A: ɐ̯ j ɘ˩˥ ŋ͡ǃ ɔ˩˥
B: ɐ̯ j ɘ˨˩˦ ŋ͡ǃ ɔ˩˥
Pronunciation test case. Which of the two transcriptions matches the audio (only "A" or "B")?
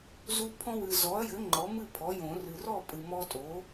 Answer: A